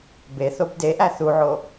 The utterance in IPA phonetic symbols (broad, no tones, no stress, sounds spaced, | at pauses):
b e θ o b d e ʔ æ θ u ʕ o